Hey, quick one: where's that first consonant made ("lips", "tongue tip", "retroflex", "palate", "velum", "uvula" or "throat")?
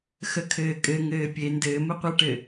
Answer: velum